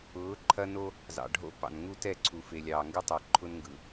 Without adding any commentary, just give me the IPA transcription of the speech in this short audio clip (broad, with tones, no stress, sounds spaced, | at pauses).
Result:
ʊː˨˦ ǃʰ ɐ˦ n o˦ | z ɑ̰˨ ɖʱ o̰˦ p ɑ̰˨ n ŋ u˦ t ɛ˦˨ ǀʰ u˨ f e˨ lʲ ɑː˨ ŋ ɡ ɯ˦ tˤ ɛ˨ ǃʰ ʊ˦ n ŋ ɡ ɯ˨